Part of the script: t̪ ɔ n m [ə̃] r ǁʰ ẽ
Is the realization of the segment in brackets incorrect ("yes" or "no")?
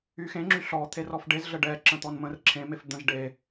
no